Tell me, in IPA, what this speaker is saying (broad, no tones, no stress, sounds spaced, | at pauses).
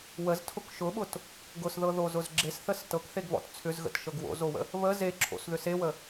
w ə z tʰ ʊ k ʃ ʊ ɓ ʊ t | ɡ ʊ s ð ɤ ð o z ʊ z ɡ͡ǁ e s θ ə s t ɤ k θ e ɡ β ɔ̰ t t͡sʰ ʏ z ɣ ə̰ t ʃ ɤ ɡ w o̰ z o w ə̰ | β ə z e ǁʰ o̰ s ð ʏ s e w ə